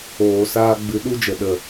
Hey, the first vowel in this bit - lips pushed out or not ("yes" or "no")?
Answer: yes